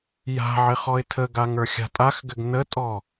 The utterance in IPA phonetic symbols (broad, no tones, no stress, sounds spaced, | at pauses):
j a̤ ʕ ɪ χ ɔ ɪ̯ tʰ ə ɡ a ŋ ə˞ xʲ a̤ tʼ a x ɡ ɘ ɡ n ə tʼ ɔ